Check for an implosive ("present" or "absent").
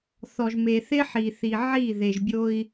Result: absent